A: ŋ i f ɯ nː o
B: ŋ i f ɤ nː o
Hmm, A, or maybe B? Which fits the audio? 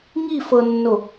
B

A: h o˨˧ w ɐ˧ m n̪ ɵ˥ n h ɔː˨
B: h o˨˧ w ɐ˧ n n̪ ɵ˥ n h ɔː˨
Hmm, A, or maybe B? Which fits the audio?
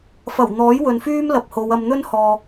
A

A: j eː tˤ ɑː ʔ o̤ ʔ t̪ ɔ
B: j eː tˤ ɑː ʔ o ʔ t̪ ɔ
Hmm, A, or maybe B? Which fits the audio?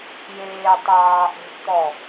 A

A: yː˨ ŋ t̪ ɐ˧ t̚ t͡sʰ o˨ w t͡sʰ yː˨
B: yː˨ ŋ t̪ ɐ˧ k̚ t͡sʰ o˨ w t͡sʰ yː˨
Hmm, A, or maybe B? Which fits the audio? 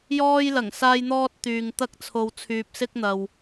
B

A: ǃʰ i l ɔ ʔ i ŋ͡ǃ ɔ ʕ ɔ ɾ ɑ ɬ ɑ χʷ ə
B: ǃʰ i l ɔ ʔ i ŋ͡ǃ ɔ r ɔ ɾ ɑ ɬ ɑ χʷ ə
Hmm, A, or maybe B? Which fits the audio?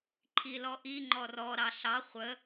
B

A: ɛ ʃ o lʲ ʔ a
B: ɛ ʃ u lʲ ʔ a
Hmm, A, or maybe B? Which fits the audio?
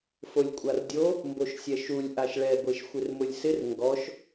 B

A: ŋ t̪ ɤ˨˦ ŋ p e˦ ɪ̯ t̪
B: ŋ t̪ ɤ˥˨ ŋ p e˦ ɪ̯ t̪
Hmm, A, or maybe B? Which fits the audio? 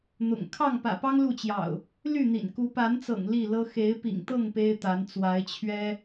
B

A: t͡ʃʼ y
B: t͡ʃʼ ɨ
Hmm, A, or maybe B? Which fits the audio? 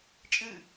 B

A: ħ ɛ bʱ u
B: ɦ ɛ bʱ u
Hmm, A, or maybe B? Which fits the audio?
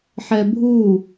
A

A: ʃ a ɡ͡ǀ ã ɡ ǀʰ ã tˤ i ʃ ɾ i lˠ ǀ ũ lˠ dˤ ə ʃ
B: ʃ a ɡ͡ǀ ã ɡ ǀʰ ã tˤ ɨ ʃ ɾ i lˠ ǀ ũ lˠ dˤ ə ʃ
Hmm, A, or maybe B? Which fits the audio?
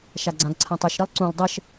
B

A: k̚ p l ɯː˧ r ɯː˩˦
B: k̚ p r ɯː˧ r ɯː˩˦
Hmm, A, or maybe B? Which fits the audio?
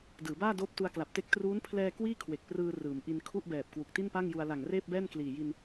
B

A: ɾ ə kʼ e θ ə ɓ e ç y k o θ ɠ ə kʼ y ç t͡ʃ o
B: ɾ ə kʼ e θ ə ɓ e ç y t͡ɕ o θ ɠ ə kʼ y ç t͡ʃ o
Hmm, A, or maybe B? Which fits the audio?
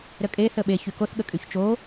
A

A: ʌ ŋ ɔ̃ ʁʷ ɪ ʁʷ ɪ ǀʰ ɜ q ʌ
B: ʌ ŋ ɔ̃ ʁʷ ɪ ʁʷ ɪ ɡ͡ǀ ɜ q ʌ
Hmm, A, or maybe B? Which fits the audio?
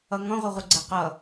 B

